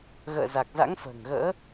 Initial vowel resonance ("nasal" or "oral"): oral